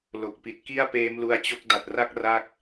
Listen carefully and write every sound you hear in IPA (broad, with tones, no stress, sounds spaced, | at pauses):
l o˨˩ k̚ p i˨˩ t̚ k i˥˩ a̯ p eː˦˥ m l u˧ a̯ t͡ɕ o˦˥ k̚ d a˨˩ t̚ r a˥˩ k̚ r a˥˩ k̚